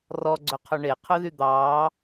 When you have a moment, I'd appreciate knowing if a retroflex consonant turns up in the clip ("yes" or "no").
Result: yes